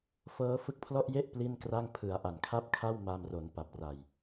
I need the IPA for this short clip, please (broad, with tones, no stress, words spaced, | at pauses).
fɤː˦˥fɯ˦˥k̚pʰlɔ˥˩ʔje˥˩ʔ pli˥˩nkra˥˩ŋ pʰɯ˩˦a̯ʔa˨˩nkʰa˥˩p̚kʰa˥˩w ma˧mro˩˦n pa˨˩p̚ra˨˩j